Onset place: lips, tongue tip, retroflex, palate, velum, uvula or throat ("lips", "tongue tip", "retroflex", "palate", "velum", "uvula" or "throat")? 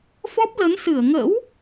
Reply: lips